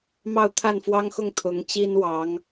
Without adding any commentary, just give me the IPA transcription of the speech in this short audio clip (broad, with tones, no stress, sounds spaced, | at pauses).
m ɑ˥˧ ʊ̯ t̪ʰ a˥˩ n f w ɑ˥ ŋ x ʊ˥˩ ŋ t̪ʰ ʊ˧˥ ŋ t͡ɕ i˥ n w ɑ˧˥ ŋ